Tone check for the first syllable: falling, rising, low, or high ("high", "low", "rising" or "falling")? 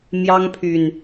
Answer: high